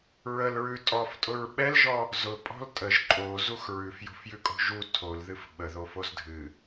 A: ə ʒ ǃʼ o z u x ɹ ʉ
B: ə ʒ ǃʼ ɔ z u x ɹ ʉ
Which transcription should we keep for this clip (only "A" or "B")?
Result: A